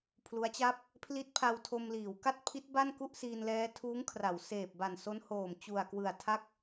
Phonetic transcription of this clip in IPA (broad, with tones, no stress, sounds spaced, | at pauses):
pʰ l u˦˥ a̯ t͡ɕ a˥˩ p̚ | pʰ l i˦˥ t̚ pʰ a˧ w tʰ o˧ m l iː˩˦ w k a˥˩ t̚ pʰ i˦˥ t̚ b a˥˩ n k u˥˩ ʔ s iː˧ n l ɛː˦˥ tʰ uː˦˥ ŋ kʰ r a˩˦ w s eː˨˩ p̚ b a˨˩ n s o˦˥ n h oː˨˩ m t͡ɕ u˨˩ a̯ k w ɯ˨˩ a̯ tʰ a˥˩ k̚